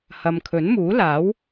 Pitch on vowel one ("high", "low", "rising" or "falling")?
low